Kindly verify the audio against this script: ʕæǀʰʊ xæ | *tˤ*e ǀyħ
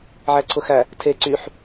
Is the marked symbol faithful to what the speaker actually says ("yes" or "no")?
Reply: no